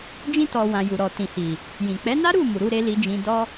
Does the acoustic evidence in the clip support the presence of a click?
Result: no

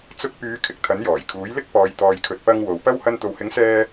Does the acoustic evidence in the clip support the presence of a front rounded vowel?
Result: yes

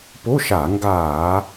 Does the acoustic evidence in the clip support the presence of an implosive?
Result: no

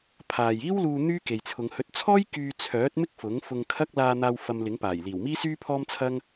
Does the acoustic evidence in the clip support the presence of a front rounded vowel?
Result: yes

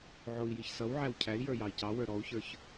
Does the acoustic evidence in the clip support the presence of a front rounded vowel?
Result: no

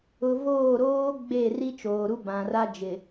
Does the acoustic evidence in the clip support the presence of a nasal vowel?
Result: yes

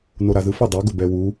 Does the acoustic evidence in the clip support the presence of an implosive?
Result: no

